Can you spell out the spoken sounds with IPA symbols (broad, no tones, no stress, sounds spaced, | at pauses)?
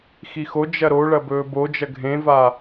x i x o d͡ʒ ɐ ɾ o ɭ ɐ b ɵː b o d͡ʒ ɐ ɡʱ ẽ v a